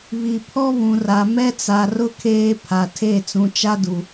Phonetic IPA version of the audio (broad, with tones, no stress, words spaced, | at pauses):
βi˨pʰɔ˦ βũ˨ra˨ mɛ˦t͡sa˨rʊ˦ kʰeː˦pʰa˨tʰe˦˨ t͡sũ˨t͡ʃa˦du˨